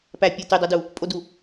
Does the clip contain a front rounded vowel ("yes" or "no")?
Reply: yes